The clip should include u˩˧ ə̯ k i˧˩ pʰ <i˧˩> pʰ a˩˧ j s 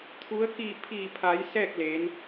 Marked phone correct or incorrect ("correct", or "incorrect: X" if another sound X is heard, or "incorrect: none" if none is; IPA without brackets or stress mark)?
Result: correct